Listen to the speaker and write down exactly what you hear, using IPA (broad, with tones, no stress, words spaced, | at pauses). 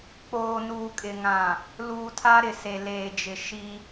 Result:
k͡poː˨nuː˨kʼɪ˨ŋã˨ | luː˨tʰa˦ɾɪ˨se˨ leː˨d͡ʒɪ˨ ʃi˦